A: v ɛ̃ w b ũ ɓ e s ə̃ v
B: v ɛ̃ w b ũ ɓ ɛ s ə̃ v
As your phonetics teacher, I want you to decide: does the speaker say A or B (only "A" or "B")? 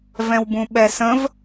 B